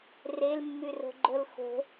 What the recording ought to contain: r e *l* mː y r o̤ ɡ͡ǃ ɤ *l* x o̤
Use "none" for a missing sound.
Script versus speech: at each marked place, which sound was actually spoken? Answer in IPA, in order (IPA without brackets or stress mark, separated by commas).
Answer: l, l